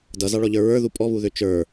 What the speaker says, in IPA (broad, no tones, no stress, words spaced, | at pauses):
dʌzɑɭɔʎə˞ ɹə˞ðu pʼɔβuðø t͡ʃə˞